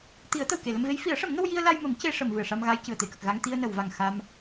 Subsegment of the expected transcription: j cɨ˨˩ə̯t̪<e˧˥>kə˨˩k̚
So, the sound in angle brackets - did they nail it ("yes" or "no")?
yes